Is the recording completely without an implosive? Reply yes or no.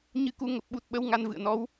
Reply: no